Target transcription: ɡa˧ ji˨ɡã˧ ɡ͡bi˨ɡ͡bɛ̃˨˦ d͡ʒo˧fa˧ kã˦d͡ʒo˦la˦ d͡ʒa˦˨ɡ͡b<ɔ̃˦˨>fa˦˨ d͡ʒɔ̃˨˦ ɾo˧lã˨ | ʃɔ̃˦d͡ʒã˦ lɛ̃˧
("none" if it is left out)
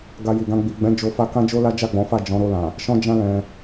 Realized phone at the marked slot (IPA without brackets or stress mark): ɔ̃˨˦